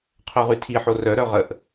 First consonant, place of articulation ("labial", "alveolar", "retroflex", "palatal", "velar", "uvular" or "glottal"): uvular